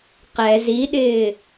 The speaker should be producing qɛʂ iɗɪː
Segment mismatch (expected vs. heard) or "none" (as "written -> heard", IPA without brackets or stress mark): ʂ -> z